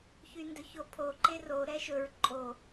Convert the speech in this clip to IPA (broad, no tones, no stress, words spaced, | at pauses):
çyndɵçopʰo ǃero ɾɛʃɵɹ ǃʼo